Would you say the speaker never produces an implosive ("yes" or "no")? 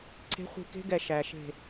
yes